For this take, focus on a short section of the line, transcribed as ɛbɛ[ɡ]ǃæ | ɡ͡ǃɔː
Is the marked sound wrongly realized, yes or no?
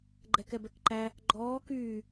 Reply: yes